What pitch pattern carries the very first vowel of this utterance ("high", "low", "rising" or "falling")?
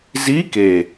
rising